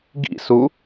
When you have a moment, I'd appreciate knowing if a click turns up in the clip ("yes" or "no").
no